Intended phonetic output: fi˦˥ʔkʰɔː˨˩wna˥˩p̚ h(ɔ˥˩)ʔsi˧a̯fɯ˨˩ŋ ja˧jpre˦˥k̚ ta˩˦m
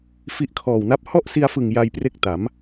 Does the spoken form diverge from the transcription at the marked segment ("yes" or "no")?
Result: no